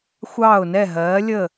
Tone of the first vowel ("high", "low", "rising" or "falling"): falling